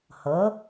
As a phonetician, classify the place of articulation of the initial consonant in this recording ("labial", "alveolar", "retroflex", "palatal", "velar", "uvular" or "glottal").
glottal